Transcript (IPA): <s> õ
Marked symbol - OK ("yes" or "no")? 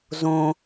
no